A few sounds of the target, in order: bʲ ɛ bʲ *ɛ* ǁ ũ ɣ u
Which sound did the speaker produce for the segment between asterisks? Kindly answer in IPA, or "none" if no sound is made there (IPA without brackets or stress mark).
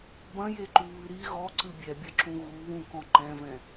ɘ